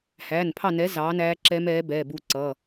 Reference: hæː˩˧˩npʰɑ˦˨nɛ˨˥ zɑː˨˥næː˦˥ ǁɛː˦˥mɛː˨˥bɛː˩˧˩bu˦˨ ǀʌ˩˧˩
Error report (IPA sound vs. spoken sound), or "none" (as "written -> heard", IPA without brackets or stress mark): none